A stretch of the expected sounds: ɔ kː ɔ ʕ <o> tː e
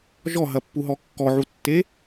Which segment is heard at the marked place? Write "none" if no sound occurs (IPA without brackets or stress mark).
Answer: u